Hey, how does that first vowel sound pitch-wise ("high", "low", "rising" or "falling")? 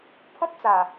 high